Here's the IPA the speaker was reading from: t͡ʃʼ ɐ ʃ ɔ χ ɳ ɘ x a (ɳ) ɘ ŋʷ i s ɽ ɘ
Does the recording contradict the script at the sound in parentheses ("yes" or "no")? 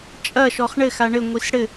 no